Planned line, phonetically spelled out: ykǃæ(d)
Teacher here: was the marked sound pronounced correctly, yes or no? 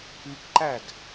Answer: yes